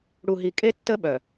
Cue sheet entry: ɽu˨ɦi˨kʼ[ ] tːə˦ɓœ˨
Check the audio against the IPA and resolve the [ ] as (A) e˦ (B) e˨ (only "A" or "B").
A